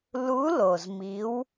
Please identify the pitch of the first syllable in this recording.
rising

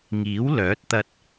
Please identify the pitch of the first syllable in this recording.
rising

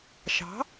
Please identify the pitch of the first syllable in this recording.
rising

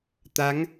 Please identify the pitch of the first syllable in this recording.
rising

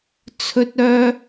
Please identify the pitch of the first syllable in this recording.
high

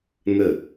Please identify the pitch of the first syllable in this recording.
falling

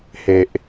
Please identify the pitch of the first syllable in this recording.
low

